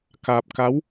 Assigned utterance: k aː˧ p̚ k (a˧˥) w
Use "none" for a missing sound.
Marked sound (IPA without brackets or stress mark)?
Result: a˧˥